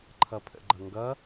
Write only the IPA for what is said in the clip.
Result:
ǃʰ ʌ pʰ ə̰ ɡ͡ǃ ʌ ŋ ɡ ʌ

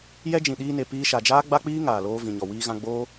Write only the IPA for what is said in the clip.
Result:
j ɛ˦ d͡ʒ ĩ˨ ɗ iː˧ n e˨ p iː˧ ʃ a˨ d͡ʒ aː˦ ɡ͡b a˦ k͡p iː˦ ŋ aː˨ l oː˧ v ĩ˨ ɲ ɔ˨ w iː˧ ɣ ã˧ ɡ͡b oː˦

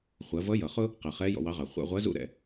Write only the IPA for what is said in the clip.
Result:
χʷ ɜ˩˧ v ʌ˧˥ j ʌ˩ χ ʊ˥ | q ɜ˩ χ ɛ˧˥ j ɔ̰˧ w ɑ˧˥ ʁ ɑ˩ χʷ æ̰˧ ʁʷ ɜ˧˥ z ṵ˥ ɾ ɛ̰˩˧

